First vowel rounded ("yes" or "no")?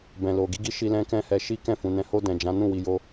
no